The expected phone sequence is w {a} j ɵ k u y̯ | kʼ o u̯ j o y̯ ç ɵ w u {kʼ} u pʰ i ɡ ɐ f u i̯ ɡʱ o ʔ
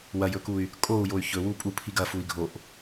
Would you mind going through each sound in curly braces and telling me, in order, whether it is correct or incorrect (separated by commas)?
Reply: incorrect, incorrect